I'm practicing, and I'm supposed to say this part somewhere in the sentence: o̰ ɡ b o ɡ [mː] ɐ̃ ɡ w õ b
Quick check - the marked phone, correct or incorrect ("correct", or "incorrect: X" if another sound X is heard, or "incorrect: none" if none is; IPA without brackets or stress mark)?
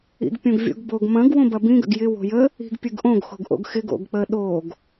incorrect: m